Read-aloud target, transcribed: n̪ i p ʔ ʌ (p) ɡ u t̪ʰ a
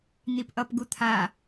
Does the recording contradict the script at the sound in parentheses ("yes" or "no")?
no